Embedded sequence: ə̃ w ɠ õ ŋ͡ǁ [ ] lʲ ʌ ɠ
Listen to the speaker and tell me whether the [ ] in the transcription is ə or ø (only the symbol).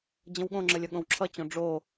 ə